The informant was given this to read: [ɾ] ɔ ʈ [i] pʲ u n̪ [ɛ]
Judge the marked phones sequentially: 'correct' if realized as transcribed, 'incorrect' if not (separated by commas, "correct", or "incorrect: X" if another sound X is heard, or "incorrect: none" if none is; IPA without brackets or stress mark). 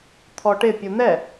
incorrect: t̪ʰ, incorrect: ɪ, correct